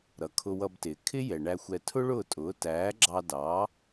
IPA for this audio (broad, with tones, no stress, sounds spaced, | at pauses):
ɾ ʌ˩ kʰ ʊ˧ w ʌ˧ b t ɪː˩ kʰ ɪ˥ j ɛ˩ ɳ æ˧ xʷ ɛ˧ tʰ ʊ˥ ɭ ʊː˥˩ tʼ ʊː˩˥ t æː˩˥ ɡ͡ǁ ɑ˧ d ɑ˩˥